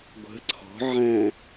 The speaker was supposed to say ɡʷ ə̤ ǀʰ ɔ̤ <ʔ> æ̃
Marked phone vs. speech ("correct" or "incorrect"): incorrect